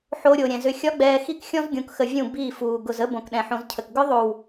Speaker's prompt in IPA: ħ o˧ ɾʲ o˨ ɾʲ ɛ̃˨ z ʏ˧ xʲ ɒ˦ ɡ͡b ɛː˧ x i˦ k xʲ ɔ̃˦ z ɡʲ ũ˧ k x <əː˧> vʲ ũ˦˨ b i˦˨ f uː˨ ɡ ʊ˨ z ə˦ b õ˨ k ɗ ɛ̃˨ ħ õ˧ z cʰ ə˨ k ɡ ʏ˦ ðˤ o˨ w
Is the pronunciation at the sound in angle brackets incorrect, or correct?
incorrect